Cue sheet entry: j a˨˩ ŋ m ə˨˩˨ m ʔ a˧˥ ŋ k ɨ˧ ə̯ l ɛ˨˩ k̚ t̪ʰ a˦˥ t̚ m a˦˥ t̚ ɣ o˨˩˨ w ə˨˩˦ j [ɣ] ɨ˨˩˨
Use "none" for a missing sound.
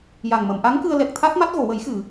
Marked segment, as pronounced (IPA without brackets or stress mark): x